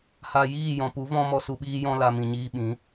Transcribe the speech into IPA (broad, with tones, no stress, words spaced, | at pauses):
ha˨ jiː˦˨jɔ̃˨pu˨˦ vɔ̃˦mɔ˧su˧ɓiː˦ jɔ̃˦la˧ mĩ˨ɲiː˧ ɓĩ˨˦